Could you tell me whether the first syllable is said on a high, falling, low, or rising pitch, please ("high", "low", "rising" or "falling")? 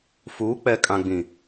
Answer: rising